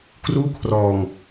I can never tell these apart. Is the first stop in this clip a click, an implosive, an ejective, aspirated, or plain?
plain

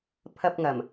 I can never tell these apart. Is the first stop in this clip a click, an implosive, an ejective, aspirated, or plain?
aspirated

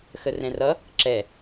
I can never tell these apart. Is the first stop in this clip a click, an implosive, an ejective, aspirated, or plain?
click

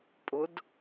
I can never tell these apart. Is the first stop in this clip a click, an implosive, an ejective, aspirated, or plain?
ejective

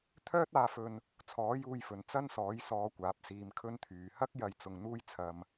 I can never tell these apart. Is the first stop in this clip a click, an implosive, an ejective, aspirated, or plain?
aspirated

